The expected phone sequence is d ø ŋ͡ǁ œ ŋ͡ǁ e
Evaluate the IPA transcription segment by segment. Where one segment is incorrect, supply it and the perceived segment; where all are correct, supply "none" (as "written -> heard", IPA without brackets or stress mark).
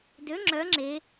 none